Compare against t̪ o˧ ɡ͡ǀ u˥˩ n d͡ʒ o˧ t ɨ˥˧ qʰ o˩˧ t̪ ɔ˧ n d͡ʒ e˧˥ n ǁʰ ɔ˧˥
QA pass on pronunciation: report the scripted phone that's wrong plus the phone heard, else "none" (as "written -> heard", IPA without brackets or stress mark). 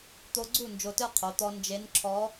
none